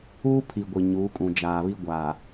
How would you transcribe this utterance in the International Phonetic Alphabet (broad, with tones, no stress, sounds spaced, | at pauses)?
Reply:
uː˦ pʰ i˨ ɡʷ i˨ ɲ uː˨˦ kʼ ũ˨ d͡ʒ aː˨ β i˦ ɡʷ aː˨